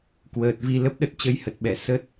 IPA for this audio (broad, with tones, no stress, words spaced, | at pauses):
kwəː˨˩t̚vi˧ lə˦˥p̚ɗə˦˥t̚ t͡ɕə˧jhə˨˩t̚ ɓɛ˧˩ sə˦˥t̚